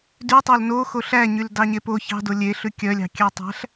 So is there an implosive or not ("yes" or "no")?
no